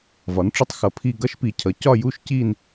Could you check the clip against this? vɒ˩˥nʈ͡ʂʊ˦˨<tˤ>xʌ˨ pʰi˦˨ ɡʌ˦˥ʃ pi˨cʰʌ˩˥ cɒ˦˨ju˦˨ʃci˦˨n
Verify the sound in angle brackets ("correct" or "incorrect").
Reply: correct